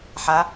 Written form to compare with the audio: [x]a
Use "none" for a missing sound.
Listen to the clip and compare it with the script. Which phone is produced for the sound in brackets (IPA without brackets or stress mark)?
ħ